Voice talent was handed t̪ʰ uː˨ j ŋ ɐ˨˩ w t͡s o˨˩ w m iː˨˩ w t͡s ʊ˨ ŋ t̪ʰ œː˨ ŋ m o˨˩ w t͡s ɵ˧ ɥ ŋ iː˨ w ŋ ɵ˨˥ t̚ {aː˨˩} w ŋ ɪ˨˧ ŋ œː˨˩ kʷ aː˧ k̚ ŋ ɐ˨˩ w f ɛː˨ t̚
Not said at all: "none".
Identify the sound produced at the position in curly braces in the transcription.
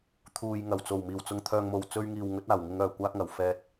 aː˨˩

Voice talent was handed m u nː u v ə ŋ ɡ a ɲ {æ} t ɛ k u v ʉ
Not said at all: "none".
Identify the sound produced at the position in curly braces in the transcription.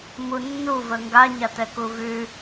a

